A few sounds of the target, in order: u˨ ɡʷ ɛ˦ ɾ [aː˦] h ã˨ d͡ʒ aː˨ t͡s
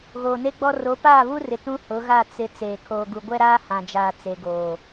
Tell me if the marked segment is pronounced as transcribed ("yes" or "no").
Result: yes